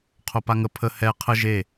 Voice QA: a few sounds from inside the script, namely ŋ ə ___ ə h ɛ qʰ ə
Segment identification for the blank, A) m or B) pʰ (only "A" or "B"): B